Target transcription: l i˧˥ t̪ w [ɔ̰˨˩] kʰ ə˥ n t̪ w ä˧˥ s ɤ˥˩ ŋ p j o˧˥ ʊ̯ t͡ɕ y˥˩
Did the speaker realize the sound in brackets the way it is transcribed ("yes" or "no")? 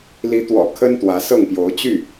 yes